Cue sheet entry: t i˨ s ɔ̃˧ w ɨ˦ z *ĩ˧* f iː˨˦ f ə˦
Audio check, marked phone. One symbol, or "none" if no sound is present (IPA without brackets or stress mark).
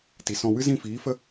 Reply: ĩ˦˨